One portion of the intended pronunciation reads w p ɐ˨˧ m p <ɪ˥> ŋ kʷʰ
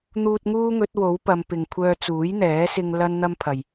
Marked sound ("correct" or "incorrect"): incorrect